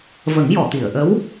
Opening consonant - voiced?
yes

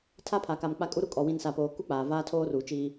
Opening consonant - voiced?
no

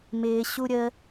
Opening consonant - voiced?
yes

